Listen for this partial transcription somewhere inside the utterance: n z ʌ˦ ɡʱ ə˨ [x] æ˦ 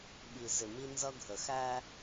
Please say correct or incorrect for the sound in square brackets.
correct